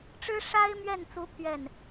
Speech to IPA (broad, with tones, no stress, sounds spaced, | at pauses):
ʈ͡ʂ ɻ̩˥ ʂ a˥ ɪ̯ m ɥ ɛ˥˩ n t͡s u˧˥ pʰ ɥ ɛ˥˩ n